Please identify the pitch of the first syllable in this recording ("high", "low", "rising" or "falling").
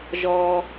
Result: low